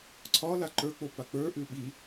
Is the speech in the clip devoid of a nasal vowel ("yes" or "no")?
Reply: yes